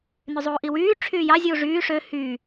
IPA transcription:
n y zˤ uː ʔ i w yː ʈ͡ʂʰ yː j ɑ zʲ uː ʐ yː ʂ ø h yː

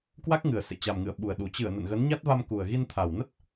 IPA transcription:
k w a˦˥ k̚ ŋ ɨ˨˩ ə̯ s ḛ˧˨ t͡ɕ a˨˩ m ŋ ɨ̰˧˨ ə̯ ɓ u˨˩ ə̯ ɗ u˨˩ t͡ɕ ɨ˧˩ ə̯ n ə̰˧˨ n ɣ ə˨˦ n ɲ a˦˥ t̚ v a˧ m k u˨˩ ə̯ ɣ i˧ n t̪ʰ a˨˩ w n ə˦˥ t̚

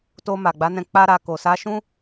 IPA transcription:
t o˧ m a˨ ɡ͡b a˨˦ n ɛ̃˧ k͡p a˧ ɾ a˨ k o˨ s a˧ ʃ ũ˦

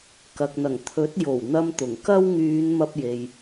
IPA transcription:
k ɐ˨ k̚ n̪ ɐ˨˩ ŋ t̪ʰ ɵ˨˥ t̚ j o˨˩ w n̪ ɐ˧ m t̪ ʊ˨˩ ŋ k ɐ˥ w ŋ yː˨˧ n m ɐ˧ p̚ j e˨ j

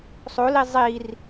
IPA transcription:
sˤ o l i zˤ i r

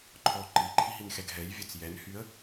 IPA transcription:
ǃʰ ɔ ǃ i ǃʰ i ɦ i n x ɛ ɡ ɦ ɛ j vʲ œ t͡s j ɛ n h y ə̯

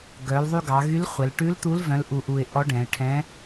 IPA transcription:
ɡ œ˩˧ l ðˤ y˧ ɡ ɑ˩˧ ɣ y˧˥ l χʷ ɛ˩˧ l ʈ ʉ˧˥ l t̪ u˧˥ l v œ̃˧˥ l ʔ u˧ ʔ u˧ ɪ̯ ʔ ɔ˧˥ ɖ ɛ̃˩˧ ɪ̯ ʈʰ ɛ̃˧˥

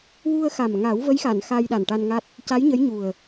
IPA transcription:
w u˧ ə̯ x a˨˩ m ŋ a˨˩˦ w v ə˧˥ j x a˨˩˨ n x a˧ j ɗ a˨˩ n ʈ a˧ n ŋ a˦˥ t̚ | c a˧˥ j ɲ ə˧˥ j ɲ u˨˩ ə̯

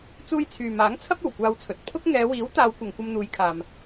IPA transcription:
t͡s uː˧ j t͡sʰ yː˨ m aː˨˥ ŋ t͡sʰ ɐ˥ p̚ o˨˩ w kʷ aː˧ w t͡sʰ ɵ˨ t̚ pʰ ʊ˥ k̚ ŋ ɛː˨˧ w iː˨˥ w t̪ aː˨˧ w kʷ ɐ˨ ŋ kʷ ɐ˧ m n̪ uː˨˧ j kʰ aː˨ m

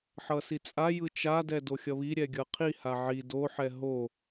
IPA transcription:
ħ ʌ s i t͡sʼ a j ɯ t͡ʃ a d ɛ d o xʲ ʌ β i ɾʲ ɛ ɡʲ ʌ qʰ i h a ʕ i d o ħ ɛ ɦ o

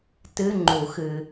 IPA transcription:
t ɨ˧˥˧ ŋ͡ǃ u˨˩˦ x ɨ˨

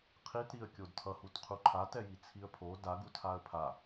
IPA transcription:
qʰ i t ɾ i ə̯ kʲ o d tʰ ʌ h u t qʰ u ǃʰ a t ɛ j i t͡sʰ i ə̯ pʰ o d a ɡ u tʰ a ə̯ pʰ a

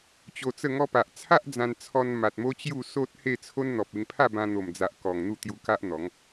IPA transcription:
t͡ɕ o˧ t͡s ə˥˧ ŋ ɔ˧ p a˨ ʔ t͡sʰ a˦ ʔ d͡z ã˧ n t͡sʰ ɔ˧ n m a˨ t̚ m o˦ t͡ɕ j u˥˧ s o˦ t̚ h e˥˧ t͡sʰ o˦ n n̪ ɔ˨ p̚ e˧ ŋ pʰ a˥˧ b ã˧ n̪ o˨˩ m d͡z a˨ ʔ k ɔ˨˩ ŋ n̪ u˥˧ t̪ j u˧ k a˦ ʔ n̪ ɔ˨˦ ŋ

